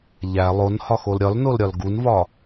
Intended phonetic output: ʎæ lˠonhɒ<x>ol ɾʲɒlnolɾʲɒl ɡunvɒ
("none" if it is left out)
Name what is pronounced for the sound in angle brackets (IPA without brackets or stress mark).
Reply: x